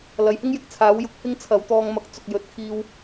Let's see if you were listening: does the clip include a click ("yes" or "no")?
no